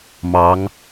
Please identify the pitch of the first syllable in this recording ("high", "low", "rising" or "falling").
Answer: rising